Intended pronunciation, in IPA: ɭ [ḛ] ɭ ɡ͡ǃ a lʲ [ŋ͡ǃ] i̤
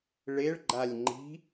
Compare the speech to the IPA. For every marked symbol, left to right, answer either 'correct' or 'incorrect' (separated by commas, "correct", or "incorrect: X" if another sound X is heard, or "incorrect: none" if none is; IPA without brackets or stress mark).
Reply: incorrect: e, correct